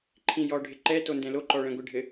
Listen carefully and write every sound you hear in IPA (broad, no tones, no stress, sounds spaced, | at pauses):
ǃʰ ĩ j ɔ ɖʱ ɪ ǃ ɛ t o n d ɛ̃ l o ǃ ɔ ɭ ɛ̃ ɡʷ ɪ ɖʱ ɘ